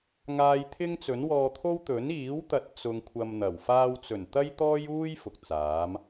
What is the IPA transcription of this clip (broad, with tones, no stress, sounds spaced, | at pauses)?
ŋ aː˧ j t̪ʰ ɪ˥ ŋ t͡s ɵ˨˥ n w ɔː˧ t̪ʰ o˥ w t̪ ɵ˨˥ n iː˨˥ w t̪ ɐ˨ t̚ t͡s ʊ˧ ŋ kʷʰ ɐ˧ m n̪ ɐ˨˩ w f aː˧ w t͡s ɵ˨˩ n t̪ ɐ˥ j t̪ ɔː˥ j uː˥ j f ʊ˨ k̚ t͡s aː˨˥ m